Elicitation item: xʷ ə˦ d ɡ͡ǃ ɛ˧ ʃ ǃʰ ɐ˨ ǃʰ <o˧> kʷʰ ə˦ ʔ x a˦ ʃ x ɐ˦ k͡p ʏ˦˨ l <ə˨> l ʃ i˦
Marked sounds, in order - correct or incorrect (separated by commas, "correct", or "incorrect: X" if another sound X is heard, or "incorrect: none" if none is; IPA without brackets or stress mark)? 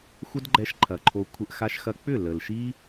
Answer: correct, correct